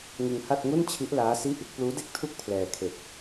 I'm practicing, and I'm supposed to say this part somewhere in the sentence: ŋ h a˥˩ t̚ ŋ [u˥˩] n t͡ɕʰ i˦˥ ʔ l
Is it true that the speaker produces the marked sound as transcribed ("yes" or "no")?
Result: yes